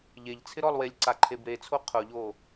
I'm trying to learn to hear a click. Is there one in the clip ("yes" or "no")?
yes